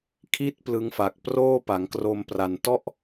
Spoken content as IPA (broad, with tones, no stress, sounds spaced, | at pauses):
kʰ i˥˩ t̚ p l ɯ˦˥ ŋ f a˨˩ k̚ p r oː˥˩ p a˩˦ ŋ k r o˧ m p r a˨˩ n t ɔ˥˩ ʔ